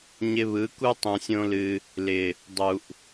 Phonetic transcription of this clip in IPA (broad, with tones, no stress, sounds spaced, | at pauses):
ɲ ɪ˧ β ɯ˨˦ k u˦ tˤ ũ˧ sʲ õ˦ l ɨ˧ | l ɪ˨ | dˤ u˨ ʔ